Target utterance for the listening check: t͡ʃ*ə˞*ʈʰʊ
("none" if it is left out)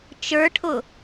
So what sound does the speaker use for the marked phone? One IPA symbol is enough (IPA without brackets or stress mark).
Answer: ə˞